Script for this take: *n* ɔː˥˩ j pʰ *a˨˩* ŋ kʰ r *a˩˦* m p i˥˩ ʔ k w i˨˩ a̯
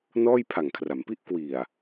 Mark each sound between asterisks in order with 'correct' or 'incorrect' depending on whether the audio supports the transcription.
correct, correct, correct

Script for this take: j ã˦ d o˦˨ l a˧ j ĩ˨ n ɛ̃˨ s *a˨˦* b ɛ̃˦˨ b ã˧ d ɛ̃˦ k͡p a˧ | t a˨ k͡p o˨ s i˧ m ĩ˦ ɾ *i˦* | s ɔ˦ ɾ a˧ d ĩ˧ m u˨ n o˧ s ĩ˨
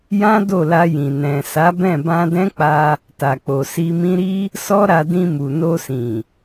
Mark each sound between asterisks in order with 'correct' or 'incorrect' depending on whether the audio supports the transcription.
correct, correct

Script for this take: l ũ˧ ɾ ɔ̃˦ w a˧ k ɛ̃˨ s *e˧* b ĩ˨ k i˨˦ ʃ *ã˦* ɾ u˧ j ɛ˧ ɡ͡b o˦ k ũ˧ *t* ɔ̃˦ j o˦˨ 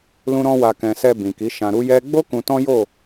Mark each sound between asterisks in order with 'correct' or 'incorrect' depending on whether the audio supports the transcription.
incorrect: ɛ˧, incorrect: ã˧, correct

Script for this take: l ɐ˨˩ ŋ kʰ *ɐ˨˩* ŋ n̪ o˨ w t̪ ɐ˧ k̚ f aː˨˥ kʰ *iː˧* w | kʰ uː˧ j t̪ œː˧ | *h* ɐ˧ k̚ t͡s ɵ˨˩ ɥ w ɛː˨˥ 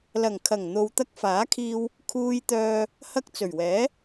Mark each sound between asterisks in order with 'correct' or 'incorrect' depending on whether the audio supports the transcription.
correct, correct, correct

